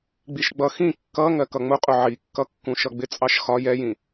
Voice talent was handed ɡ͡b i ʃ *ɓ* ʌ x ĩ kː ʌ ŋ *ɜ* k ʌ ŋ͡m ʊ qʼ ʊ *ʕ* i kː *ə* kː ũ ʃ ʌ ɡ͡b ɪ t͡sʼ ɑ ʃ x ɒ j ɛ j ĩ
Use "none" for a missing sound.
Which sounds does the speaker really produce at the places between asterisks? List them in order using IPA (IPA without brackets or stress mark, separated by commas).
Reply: ɡ͡b, ɜ, ʕ, ʌ